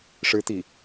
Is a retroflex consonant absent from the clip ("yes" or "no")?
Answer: no